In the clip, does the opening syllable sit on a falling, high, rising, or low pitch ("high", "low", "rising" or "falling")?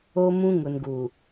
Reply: high